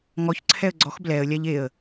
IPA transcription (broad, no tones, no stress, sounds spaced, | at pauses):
ŋ ɔ ç ǀʰ ɛ ə̯ ɡ͡ǀ ɔ x b l ɛ ə̯ lʲ a ʎ e ə̯